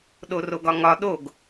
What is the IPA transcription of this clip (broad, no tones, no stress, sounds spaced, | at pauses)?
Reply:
ɗ o r o ɡ ɒ ŋ ɒ ɗ o ɡ